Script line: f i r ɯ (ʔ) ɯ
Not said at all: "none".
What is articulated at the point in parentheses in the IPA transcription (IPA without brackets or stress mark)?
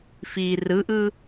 ʔ